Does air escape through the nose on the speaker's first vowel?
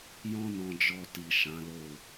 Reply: yes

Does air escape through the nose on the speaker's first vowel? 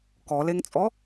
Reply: no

